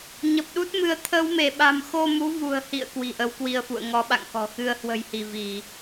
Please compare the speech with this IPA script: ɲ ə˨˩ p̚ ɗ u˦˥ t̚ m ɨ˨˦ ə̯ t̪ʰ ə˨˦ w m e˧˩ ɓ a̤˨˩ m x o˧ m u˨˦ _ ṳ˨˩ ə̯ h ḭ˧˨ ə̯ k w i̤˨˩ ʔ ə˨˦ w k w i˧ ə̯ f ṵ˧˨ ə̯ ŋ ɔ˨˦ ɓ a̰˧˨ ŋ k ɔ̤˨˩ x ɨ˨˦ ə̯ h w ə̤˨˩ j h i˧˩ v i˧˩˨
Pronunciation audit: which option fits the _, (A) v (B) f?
A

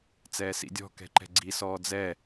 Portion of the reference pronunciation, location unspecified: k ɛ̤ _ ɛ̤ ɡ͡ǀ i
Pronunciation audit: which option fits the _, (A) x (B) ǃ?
B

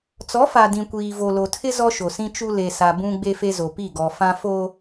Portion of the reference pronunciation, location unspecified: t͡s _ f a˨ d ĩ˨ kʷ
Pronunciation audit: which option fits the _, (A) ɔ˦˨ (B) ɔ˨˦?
B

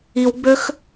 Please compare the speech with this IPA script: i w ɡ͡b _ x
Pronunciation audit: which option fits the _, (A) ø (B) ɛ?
A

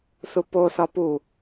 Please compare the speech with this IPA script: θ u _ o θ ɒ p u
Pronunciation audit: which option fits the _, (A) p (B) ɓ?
A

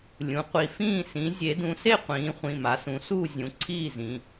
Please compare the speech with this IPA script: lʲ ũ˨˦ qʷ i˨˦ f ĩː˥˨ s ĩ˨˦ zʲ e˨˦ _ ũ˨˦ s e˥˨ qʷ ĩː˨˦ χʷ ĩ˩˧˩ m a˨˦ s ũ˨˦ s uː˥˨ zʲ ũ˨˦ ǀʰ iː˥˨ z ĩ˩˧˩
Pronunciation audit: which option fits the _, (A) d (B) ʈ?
A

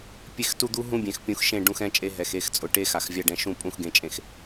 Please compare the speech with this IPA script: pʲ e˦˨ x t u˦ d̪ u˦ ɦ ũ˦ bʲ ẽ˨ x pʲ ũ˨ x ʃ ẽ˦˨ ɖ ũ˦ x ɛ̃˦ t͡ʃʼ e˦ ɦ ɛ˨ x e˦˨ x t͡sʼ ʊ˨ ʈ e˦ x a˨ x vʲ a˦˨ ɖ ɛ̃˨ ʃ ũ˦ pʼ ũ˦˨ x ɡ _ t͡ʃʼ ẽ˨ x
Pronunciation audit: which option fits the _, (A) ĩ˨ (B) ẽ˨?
B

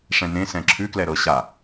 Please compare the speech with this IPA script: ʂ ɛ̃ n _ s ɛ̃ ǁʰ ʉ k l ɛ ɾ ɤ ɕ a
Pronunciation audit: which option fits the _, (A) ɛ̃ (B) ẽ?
B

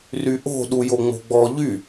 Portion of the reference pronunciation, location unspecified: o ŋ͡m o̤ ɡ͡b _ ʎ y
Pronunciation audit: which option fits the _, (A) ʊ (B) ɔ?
B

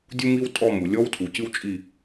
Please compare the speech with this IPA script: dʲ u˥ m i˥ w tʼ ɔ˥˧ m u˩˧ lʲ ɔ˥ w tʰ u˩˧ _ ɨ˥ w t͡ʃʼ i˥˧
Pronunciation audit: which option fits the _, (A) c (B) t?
A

